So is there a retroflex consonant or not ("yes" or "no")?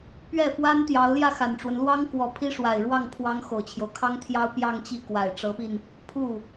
yes